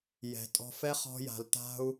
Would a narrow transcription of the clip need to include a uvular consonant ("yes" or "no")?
yes